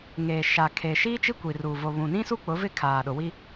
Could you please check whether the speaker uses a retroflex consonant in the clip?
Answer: no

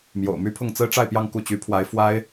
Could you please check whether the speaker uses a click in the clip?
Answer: no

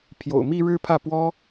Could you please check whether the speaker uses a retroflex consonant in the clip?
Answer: yes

